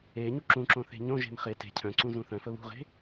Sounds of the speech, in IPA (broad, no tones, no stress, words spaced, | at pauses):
e ɲuǁũǁõ θe̤ɲõʒe̤m χe te̤ cʰœ̃ǀũ zũθœ̃fə βṳʁe̤